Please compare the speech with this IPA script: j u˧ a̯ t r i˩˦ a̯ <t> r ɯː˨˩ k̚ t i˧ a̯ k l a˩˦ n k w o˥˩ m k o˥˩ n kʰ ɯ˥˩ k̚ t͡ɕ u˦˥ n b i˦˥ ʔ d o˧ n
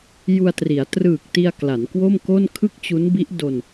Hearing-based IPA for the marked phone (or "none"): t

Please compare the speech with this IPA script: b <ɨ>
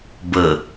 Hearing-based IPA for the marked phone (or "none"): ə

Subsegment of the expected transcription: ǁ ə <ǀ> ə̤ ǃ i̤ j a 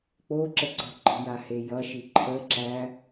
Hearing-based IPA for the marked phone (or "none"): ǀ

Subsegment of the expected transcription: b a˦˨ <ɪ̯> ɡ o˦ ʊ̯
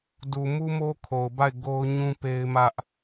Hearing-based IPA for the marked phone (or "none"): ɪ̯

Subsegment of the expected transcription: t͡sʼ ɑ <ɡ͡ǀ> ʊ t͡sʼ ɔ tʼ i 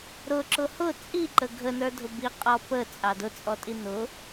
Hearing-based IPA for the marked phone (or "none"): d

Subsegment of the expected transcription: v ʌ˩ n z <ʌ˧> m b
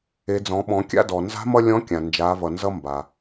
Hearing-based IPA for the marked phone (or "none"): ʌ˧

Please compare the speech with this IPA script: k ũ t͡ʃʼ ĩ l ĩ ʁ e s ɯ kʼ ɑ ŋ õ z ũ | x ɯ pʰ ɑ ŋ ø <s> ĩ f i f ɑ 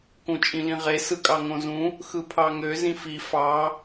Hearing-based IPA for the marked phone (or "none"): z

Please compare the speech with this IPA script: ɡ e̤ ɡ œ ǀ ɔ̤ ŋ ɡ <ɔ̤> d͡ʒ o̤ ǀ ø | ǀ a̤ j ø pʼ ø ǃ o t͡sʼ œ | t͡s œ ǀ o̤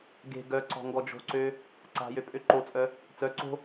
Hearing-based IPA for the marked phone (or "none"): ɔ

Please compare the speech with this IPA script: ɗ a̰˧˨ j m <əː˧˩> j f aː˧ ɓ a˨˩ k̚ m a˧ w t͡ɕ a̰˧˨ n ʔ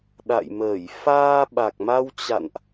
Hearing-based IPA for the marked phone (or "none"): əː˧˩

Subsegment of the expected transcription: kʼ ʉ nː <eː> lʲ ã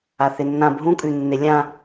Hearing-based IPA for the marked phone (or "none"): e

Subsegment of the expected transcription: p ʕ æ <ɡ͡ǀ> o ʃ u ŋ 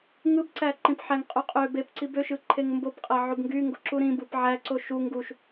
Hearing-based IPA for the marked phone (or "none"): ǀ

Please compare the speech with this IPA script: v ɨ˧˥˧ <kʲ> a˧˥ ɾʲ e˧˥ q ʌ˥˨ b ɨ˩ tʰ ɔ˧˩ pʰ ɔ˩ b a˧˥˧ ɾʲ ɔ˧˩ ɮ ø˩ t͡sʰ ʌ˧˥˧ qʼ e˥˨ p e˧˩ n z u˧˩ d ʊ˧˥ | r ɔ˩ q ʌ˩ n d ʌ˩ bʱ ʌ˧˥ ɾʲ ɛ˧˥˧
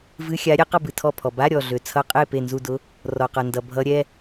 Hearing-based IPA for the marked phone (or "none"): xʲ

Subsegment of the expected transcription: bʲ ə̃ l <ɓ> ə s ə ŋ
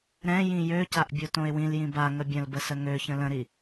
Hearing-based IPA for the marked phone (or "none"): b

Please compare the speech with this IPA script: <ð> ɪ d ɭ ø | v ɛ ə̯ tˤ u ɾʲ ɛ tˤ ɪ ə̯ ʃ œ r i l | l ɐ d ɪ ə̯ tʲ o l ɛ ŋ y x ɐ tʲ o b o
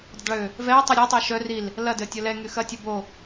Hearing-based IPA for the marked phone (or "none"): dˤ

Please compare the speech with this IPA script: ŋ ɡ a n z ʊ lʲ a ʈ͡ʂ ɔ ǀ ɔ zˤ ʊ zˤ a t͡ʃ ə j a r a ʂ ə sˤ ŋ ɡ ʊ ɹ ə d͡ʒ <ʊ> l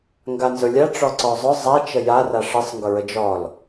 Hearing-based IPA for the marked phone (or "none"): ɔ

